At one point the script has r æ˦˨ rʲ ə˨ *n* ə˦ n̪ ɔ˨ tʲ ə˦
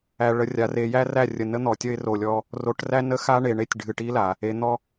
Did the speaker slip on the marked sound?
no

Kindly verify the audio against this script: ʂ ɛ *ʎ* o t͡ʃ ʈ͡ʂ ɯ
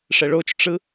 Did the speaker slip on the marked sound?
yes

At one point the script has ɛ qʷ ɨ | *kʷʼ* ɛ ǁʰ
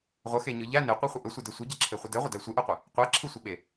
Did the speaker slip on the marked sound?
yes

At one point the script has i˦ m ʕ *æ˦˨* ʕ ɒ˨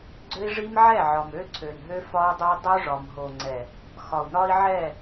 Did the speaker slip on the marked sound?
yes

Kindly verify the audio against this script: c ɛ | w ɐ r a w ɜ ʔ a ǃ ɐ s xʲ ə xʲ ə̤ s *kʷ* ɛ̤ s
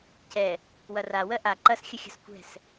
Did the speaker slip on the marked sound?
no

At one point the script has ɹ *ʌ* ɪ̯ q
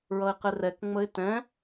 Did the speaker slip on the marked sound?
no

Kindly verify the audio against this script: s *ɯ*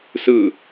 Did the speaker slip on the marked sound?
no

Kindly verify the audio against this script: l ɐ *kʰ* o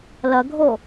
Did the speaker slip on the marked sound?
yes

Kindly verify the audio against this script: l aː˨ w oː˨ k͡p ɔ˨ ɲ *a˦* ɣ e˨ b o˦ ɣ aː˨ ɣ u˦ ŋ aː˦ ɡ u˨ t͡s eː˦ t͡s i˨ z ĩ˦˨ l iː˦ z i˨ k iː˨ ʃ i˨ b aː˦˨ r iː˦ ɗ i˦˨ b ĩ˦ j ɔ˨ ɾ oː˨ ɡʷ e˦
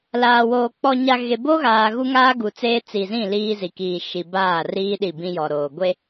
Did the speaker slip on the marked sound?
yes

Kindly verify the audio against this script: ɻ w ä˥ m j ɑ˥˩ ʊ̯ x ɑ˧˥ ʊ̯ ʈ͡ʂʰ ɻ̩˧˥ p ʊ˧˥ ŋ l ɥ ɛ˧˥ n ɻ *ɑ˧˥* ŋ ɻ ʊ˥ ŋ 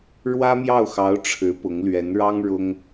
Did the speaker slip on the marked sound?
yes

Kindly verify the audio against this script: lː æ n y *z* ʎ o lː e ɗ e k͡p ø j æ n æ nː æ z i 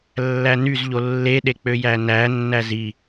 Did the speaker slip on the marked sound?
no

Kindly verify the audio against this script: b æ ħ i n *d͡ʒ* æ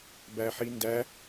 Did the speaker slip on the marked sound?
yes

